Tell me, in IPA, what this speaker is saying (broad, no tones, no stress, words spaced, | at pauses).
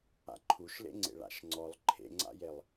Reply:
a̰ǃʰuʃlḛŋ͡ǀḛ ɭa̰ʃŋ͡ǀɔlˠ ǃʰḛŋ͡ǀa̰jelˠ